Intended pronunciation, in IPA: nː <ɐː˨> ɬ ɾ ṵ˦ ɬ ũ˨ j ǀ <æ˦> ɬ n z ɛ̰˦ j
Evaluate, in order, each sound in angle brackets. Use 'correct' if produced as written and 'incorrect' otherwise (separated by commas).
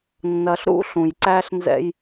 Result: incorrect, correct